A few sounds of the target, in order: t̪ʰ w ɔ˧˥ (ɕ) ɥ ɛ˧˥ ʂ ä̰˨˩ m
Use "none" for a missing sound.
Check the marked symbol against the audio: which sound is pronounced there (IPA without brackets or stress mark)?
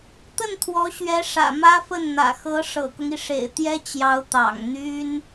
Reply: ɕ